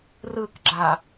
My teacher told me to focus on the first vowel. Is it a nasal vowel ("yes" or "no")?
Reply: no